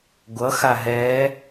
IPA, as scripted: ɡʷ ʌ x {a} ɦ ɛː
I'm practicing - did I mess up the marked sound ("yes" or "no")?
no